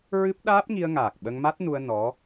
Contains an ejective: no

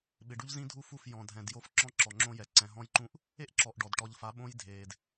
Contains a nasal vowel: yes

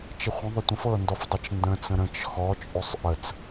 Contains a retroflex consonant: no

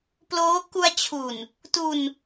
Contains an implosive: no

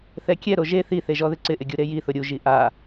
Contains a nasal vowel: no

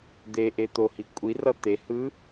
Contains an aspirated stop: no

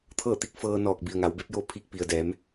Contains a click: no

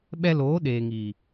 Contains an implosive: yes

